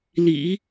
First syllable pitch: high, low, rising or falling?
low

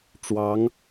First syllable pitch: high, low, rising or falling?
rising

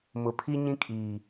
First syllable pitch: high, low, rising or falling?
low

